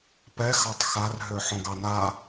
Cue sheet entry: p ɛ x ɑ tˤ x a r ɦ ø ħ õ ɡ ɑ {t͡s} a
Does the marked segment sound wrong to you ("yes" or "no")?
yes